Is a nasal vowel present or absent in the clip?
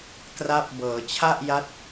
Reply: absent